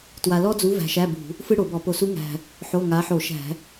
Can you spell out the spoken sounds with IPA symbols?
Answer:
t w a˧ l ɔ˥ d͡z u˧˥ v æ̤˧ ʃ æ˧˥˧ b ṳ˧˩˧ | f ɯ˥ ɽ o˧˩˧ b ɔ˧˩˧ p o˧ s u˧˥ ŋ æ̤˨˩ | ħ o˧˥˧ ŋ a˧˥ ħ o˧˩˧ ʃ æ̤˧˩˧

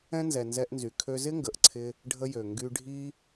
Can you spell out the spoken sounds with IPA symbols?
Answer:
ɛ̃˥ n z ɛ˩ n z ɛ˧ ʔ n z y˩ kʰ ø˧ z ɪ˥ ŋ ɡ ə˩ ʔ ǀʰ ɪ˧ | ɖʱ ə˧ j ø˩ ŋ ɡ y˧ ɖʱ i˥

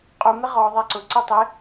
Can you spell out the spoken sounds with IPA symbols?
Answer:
qʼ u m ɪ ʁ ɔ ðˤ ɛ ǀ ʊ ǀ e tˤ ɪ

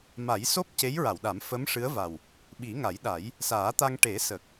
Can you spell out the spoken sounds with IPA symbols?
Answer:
m a˨˩˦ j s o˦˥ p̚ c e˧˥ j ɹ a˨˩˨ w ɗ a˨˩˦ m f ə˧˥ m ʂ ɨ˧˥ ə̯ v a˨˩ w | ɓ i˨˩˦ ŋ a˨˩˦ j ɗ a˨˩˦ j | s aː˨˩˦ t̪ a˧ ŋ ʈ e˨˩˦ s ə˨˩ k̚

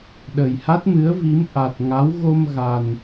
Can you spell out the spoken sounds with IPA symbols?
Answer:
ɗ ə˨˩ j h a˦˥ t̚ m ɨ˨˦ ə̯ v i˨˦ m ʔ a˨˩ t̚ ŋ a˨˦ w ɣ o˧ m ɣ a˨˩ n

